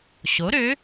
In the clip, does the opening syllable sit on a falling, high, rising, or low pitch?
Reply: rising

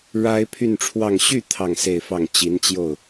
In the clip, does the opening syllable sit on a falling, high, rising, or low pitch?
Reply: high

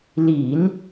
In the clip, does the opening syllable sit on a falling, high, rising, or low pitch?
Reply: low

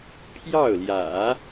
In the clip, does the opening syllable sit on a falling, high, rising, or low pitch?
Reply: falling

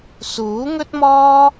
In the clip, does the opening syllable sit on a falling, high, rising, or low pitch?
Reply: rising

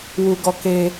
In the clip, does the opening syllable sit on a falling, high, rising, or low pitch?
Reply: low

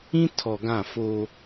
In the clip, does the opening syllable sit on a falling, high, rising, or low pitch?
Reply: high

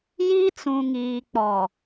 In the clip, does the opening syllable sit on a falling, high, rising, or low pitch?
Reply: high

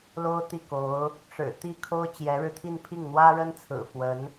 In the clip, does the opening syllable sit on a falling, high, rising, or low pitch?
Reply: high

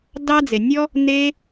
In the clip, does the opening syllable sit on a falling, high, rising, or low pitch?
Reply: high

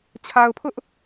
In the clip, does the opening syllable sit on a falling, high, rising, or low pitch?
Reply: low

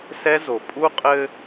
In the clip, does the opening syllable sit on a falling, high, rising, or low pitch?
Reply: high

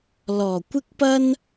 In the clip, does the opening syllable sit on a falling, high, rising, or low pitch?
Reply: low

